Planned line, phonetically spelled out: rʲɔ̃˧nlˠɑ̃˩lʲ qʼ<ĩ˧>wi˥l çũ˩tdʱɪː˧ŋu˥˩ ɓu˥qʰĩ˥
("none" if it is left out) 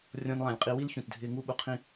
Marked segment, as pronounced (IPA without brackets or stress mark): i˧